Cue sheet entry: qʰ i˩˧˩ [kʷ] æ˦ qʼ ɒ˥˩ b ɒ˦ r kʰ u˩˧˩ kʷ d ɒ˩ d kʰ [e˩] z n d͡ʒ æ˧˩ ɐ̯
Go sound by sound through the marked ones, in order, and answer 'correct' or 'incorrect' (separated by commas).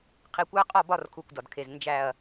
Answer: correct, correct